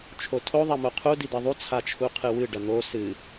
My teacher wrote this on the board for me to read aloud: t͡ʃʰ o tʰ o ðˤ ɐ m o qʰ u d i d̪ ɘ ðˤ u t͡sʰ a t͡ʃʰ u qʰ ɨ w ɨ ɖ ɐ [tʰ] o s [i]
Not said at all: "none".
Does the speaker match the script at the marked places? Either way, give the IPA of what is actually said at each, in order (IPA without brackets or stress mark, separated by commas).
n̪, ɨ